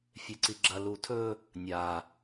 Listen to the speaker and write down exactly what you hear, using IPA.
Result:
fʲ e ǀ i ɡ͡ǁ ɐ l u tʰ ɵ | nʲ a

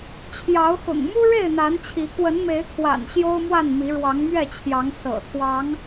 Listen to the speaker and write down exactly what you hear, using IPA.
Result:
t͡ɕʰ j ɑ˨˦ ʊ̯ x ʊ̰˨˩ ŋ m u˦ ɻ e˥˨ ɪ̯ n̪ a˨˦ n t͡ɕʰ i˨˦ k w ə˨˦ n m e˨˦ ɪ̯ kʰ w a̰˨˩ n ɕ j o˦ ʊ̯ m w a˥˨ n m i˨˦ ɻ w ɑ˨˦ ŋ m ɥ ɛ˥˨ t͡ɕʰ j ɑ˨˦ ŋ s ɤ̰˨˩ t̪ʰ w ɑ˨˦ ŋ

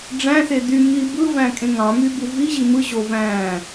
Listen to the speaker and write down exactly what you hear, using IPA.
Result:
ɖ͡ʐ æ̃ s e d y m i b ɯ v æ̃ kʼ ẽ ŋ ɑ̃ m y b u v i ʑ i m ɯ ʑ o v æ̃ː

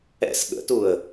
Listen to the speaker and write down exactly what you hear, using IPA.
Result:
ɛ̰ s ɠ ə̰ t u ə̯

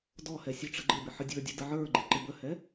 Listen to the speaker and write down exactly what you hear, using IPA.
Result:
d ɔ h ɛ sʲ ɔ ʈ͡ʂ ə ɡ͡ǃ ɪ b ɪ ħ ə dʲ ə˞ dʲ ɛ d ə ʕ ə˞ ɡ͡ǃ i ǃ ɪ b ə h ɛ

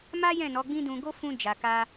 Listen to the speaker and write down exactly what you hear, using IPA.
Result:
m a˦ j ɛ̃˦˨ n ɔ˨˦ ɡ͡b ĩ˦ d ũ˧ ɡ o˦ f ũ˧ d͡ʒ a˨ k a˧

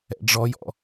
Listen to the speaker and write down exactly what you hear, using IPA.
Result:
ɛ̰ ɖ͡ʐ ɔ j ɔ̰

